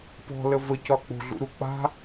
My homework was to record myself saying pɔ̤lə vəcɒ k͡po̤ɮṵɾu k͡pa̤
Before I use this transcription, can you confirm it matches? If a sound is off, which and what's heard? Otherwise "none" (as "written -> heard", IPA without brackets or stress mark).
none